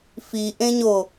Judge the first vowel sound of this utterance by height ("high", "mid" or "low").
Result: high